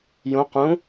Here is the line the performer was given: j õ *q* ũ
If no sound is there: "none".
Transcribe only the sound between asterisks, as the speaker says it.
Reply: q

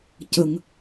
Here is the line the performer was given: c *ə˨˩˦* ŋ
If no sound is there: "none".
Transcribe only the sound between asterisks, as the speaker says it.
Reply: ə˨˩˨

